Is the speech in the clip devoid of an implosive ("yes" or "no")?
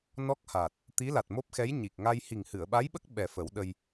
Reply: no